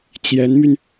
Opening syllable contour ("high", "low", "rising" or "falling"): rising